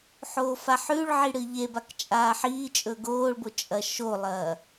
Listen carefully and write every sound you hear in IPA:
ħ oː f a ħ ʉ ɭ ʕ i ɽ ɨ ʎ e b a k t͡ʃʼ aː ħ iː t͡ʃʼ ɵ ɡ oː ɭ b o t͡ʃʼ ɐ ʃ o lˠ ɐː

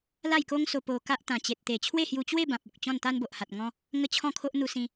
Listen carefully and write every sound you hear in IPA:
l a˥˧ j k o˦ ŋ s o˧ p o˧ k a˦ ʔ t̪ ã˨˩ t͡ɕ e˨ t̚ t̪ e˨˩ t͡ɕʰ w e˥˧ h j u˧ t͡ɕ w e˥˧ b ã˨ p̚ o˨ k̚ t͡ɕ ɔ̃˥˧ n t̪ a˦ n b o˨ ʔ h a˨ t̚ ŋ ɔ̃˧ | ŋ ə˦ t͡ɕʰ ɔ̃˥˧ kʰ o˦ ʔ n̪ u˧ s ĩ˧

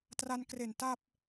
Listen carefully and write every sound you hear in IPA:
t r a˧ n k r e˨˩ n t a˥˩ p̚

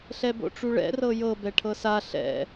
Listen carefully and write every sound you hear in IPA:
ɬ ɛ b o̰ ʈ͡ʂ u ɭ ɛ̰ r ɤ j ɤ b ɛ ʈʰ ɤ s a ɬ ɛ̰

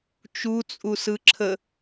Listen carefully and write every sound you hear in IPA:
t͡ʃ u t͡sʼ u s ɯ ǁʰ ə

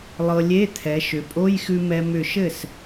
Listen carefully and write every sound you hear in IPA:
lˠ ɤ˧ lʲ e˧˥˧ t̪ʰ ɛ˩˧ ʃ ʏ˩˧ pʼ o˧˥˧ j x ʉ˧ m ɛ˧ m ʏ˧˩ ʃ ɘ˥˩ s

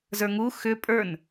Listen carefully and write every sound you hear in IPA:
z ə˞ ŋ u x ʏ pʼ ə˞ n

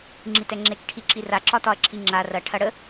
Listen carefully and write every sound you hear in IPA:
ŋ͡ǁ i t ɛ ŋ͡ǁ e k ʈʰ i ǁ i r a ǁ ɒ t ɒ ɐ̯ ǁʰ i ŋ͡ǁ a r ɐ ʈʰ ɐ ɽ ə

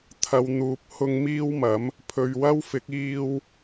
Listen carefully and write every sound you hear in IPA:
t̪ʰ ɐ˨ w n̪ uː˨ p̚ h ʊ˧ ŋ m iː˥ w m ɐ˨˥ m | pʰ ɵ˨ ɥ w ɐ˥ w f ɪ˨˥ k̚ iː˧ w

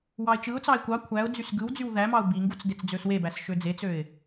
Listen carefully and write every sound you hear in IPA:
w ɑ ɪ̯ t͡ʃ ɯ ʊ̯ t͡s ɑ ɪ̯ kʷ ɑ kʷʰ æ ʊ̯ d͡z y s ɡ ɯ w d͡z y w ð æ m ɑ ʊ̯ b i ŋ ɡ u t͡s d e t͡s d͡z ø s w e b æ s ʃ ø d͡z e t͡s ø ɪ̯

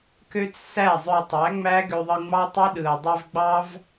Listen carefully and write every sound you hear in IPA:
k ø˦ t͡s s æ˦˨ zˤ ø˧ tˤ æ˨˦ ŋ͡m æ˦ ɡ ø˧ ðˤ ɯ˧ ŋ͡m ɑ˦ tˤ e˦ ɗ ɯ˨ ɐ̯ dˤ e˧ v ɡ͡b ɑ˦ v

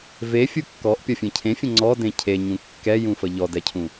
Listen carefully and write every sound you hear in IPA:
v e fʲ u kː ɔ ʔ pʲ ɔ fʲ ẽ cʰ ẽ fʲ ə̃ ŋ͡ǀ ɔ d ẽ cʰ e ɲ ũ kː ɛ j ũ f ə ʎ ɔ d ɛ cʰ ũ

